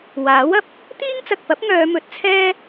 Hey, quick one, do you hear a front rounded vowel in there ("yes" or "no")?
yes